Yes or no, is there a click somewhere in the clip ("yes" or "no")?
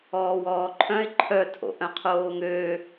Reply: yes